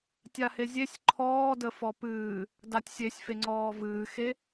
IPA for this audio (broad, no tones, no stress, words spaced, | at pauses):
tʲahezʲesʲ ǃʰɔː dəfɔpɨː | datʲsʲesʲfe ŋ͡ǀɔːvɨːxe